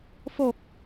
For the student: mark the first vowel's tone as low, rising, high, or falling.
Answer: low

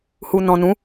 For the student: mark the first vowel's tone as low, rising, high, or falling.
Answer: low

